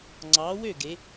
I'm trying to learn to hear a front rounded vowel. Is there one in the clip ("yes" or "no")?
yes